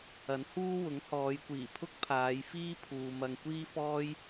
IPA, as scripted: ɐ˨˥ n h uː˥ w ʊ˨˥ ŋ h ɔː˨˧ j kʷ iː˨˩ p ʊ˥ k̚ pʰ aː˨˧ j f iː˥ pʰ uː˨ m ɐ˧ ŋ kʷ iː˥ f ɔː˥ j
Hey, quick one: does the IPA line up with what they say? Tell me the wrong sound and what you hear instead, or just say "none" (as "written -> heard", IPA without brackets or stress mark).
p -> pʰ